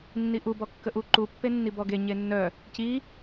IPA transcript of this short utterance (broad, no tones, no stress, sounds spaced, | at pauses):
nː i ʔ u b ɔ kː ə ʔ u ǃ u pː e nː i b ɔ ɡ e ɲ e nː œ | c i